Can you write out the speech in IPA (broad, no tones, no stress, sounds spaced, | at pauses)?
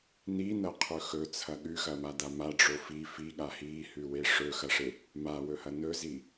n i n ɐ qʰ ɵ x ɵ t͡sʰ ɐ ɠ ʉ x ɐ m a d a m a ɖ͡ʐ o f i f i ɠ a h i h ʉ w e ʂ ɵ x ɐ ʂ e | m a w ɵ h ɐ n ɵ z i